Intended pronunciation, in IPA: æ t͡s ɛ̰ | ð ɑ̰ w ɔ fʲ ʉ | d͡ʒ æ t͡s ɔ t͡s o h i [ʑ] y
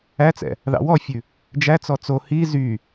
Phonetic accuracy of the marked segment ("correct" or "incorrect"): incorrect